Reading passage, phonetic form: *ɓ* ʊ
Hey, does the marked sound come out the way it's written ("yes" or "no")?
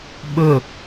yes